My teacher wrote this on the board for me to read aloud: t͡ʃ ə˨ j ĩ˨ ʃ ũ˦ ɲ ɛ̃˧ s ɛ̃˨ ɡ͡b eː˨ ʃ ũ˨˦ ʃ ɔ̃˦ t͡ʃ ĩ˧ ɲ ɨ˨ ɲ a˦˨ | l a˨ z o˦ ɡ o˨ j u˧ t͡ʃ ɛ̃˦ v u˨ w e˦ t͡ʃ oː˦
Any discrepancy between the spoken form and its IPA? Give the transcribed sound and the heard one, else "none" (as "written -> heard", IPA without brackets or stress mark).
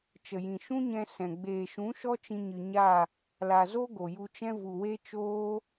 ɔ̃˦ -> ɔ˦